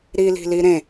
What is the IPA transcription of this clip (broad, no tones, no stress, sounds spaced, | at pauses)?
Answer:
ɾ i l i̤ l i ɾ ẽ